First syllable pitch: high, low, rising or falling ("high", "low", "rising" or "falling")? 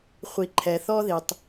low